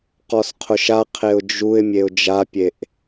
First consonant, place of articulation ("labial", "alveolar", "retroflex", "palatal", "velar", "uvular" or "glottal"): uvular